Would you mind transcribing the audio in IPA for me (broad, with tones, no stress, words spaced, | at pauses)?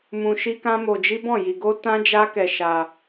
mũ˧ʃi˦ kã˦mo˧d͡ʒi˦ bɔ̃˦˨ji˧ɡo˦ tã˦d͡ʒa˦ kɛ˧ʃa˧